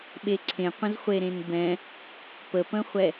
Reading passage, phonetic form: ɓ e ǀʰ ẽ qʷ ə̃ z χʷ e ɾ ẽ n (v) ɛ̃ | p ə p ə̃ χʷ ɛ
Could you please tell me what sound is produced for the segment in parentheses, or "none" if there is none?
b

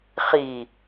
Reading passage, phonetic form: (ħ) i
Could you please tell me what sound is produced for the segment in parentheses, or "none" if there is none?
χ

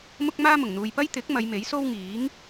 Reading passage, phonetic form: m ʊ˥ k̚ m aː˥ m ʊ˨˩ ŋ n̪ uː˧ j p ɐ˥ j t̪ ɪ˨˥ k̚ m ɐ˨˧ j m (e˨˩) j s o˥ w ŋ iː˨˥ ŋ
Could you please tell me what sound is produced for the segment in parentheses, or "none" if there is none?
e˨˥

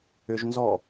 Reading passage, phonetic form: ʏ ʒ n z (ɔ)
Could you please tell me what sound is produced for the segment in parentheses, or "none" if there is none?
ɔ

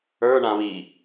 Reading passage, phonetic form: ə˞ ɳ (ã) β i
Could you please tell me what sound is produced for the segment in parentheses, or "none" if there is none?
ã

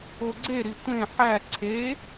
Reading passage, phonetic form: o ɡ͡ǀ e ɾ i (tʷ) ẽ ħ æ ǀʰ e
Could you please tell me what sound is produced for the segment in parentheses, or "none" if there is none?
tʷ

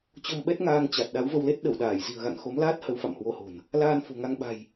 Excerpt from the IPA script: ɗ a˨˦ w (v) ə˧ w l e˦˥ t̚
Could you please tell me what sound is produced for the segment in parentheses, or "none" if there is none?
v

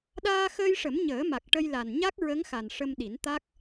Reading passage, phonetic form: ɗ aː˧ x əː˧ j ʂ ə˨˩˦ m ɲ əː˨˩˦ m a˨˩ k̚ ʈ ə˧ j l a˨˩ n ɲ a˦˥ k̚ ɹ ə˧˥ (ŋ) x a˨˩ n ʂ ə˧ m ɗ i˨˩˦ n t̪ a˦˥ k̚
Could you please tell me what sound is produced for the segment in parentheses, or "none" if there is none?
ŋ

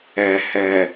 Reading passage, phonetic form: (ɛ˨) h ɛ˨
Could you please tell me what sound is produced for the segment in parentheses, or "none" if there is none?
ɛ˨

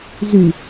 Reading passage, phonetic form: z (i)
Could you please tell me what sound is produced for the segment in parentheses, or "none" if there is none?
y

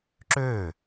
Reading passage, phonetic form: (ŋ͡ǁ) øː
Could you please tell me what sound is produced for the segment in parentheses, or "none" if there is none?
ǁ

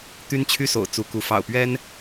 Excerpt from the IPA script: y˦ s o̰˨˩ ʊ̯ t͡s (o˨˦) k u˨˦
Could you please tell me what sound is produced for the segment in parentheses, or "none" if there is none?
u˨˦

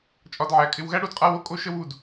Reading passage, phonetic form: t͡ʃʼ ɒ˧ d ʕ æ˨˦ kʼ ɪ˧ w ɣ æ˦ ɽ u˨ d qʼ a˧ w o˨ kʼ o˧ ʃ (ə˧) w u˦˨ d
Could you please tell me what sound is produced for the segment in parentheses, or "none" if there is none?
ə˦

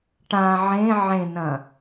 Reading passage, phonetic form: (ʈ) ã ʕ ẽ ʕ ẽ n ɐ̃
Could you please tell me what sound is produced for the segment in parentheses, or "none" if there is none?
ʈ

